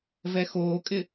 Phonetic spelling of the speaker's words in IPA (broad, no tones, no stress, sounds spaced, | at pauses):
v ɛ x oː kʼ ɪ